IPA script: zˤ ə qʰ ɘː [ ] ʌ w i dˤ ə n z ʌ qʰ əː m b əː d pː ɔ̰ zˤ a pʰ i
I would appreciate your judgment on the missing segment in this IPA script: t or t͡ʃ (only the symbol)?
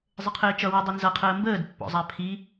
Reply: t͡ʃ